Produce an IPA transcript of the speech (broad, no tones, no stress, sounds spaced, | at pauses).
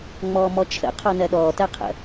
ŋ͡m ɔː m ɔ t͡ʃʰ ə̰ qʰ ɔ n ɜ ɗ ɔː t ɜ qʰ ə̰